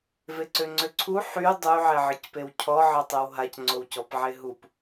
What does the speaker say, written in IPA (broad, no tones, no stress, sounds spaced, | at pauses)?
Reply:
v e ǀ ø ŋ͡ǀ ø ǀʰ u ħ y dˤ y ʕ ɛ ʕ ə c p e w cʰ ɔ ʕ ə tˤ e w ɦ a c ŋ͡ǀ o w c ɔ p ʕ e ɦ u p